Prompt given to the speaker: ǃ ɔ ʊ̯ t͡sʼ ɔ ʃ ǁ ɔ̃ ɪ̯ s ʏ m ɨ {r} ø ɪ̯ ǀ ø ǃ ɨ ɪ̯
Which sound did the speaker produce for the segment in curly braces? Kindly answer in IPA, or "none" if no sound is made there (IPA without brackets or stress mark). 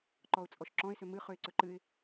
χ